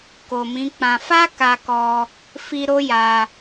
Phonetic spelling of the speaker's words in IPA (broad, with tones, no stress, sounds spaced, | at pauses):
k o˨ m ĩ˨˦ k͡p ã˧ f a˦ k a˧ k ɔ˧ | f i˧ ɾ o˦ j a˧